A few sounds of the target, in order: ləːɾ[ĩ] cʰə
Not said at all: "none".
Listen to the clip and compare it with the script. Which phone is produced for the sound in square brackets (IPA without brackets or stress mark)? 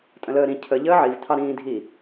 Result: ĩ